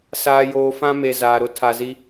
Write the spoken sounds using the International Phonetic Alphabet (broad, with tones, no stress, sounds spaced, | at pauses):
s aː˨ j oː˨ f ã˦ m e˨ z aː˨ ɾ ʊ˦ tʰ a˨ z i˦